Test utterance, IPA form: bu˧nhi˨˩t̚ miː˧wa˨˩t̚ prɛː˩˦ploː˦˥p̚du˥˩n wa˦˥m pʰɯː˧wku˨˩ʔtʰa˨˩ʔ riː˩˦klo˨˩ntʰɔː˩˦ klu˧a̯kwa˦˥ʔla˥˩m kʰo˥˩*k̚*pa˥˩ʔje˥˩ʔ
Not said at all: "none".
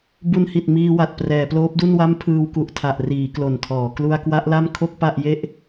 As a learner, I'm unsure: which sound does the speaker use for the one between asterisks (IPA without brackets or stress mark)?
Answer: k̚